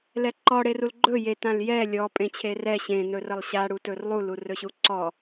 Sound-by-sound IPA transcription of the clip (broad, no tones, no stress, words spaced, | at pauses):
lɛǃɔ ɽerulɡ͡ǃɵ je tãljɛ lʲɔ pʼẽt͡ɕʰerɛ ɕẽ nɵrəlˠɕa ɽutɵrlˠu lurɵɕuǀɔ